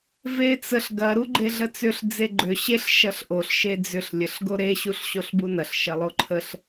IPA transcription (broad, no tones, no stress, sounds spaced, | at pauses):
v e t͡s ə ɬ ɡ ɐ ɾ u ɡ͡ǃ e ɮ ə t͡s ʏ ɬ d͡z e ɡ͡ǃ ʏ ɕ e ɬ ʃ ɐ ɬ ʔ o ɬ ʃ e d͡z ʏ ɬ lʲ ə ɬ ɡ o ɾ e ɕ u ɬ ɕ o ɬ b u n ɐ ɬ ʃ ɐ lˠ o ǃʰ ə ɬ